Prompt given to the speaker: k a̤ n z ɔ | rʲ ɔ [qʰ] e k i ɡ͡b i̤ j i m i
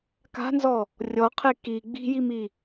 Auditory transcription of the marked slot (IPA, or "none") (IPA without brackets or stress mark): qʰ